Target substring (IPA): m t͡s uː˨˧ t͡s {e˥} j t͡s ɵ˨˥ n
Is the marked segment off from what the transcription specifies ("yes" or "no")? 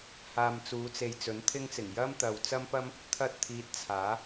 yes